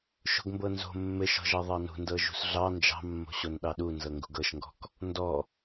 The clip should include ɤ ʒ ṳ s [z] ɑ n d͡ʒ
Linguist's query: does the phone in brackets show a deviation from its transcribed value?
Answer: yes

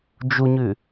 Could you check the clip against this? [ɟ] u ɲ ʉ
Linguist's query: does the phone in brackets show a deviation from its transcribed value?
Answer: yes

